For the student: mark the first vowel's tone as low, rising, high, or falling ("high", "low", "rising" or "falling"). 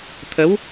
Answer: rising